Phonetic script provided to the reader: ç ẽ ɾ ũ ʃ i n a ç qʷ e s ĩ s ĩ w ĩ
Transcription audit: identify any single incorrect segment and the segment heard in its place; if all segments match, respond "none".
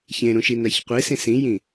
w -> j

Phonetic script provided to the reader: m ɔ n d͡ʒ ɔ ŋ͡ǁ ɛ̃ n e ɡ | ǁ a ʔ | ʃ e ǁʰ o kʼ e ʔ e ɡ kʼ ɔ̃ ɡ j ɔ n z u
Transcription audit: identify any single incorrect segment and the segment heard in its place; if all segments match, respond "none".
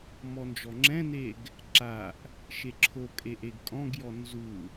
none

